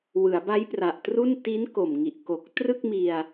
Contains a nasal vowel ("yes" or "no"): no